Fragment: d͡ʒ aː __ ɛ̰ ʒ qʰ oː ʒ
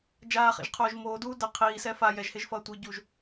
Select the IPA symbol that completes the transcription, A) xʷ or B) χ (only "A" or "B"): B